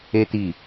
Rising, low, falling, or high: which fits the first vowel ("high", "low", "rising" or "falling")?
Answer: high